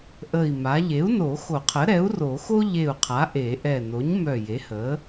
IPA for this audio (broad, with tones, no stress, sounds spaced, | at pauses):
ʔ ə˧˩ i̯ m a˩˥ ʎ e˩˥ u̯ n o˨˩˦ x o˨˩˦ qʰ ə˩˥ ɾ ɛ˩˥ u̯ r o˨˩˦ x o˥ ʎ e˧˩ u̯ qʰ a˩˥ ʔ e˨˩˦ ʔ ɛ˧˩ n o˩˥ ɲ m œ˧˩ j e˩˥ h ə˩˥